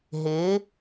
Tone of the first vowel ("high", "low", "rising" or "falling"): rising